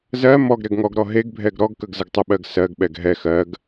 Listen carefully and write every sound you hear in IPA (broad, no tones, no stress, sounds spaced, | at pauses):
z ɜ m ɔ ɡ ɾ ɛ ɡ ŋ ɔ ɡ ɾ ɔ ɦ e ɡ bʱ ɛ ɡ ɾ ɔ ɡ k ə ɡ z ə ɡ tˤ ə ɓ ɜ ɡ s ɜ ɡ ɓ ɛ ɡ ɦ ɛ x ɜ ɡ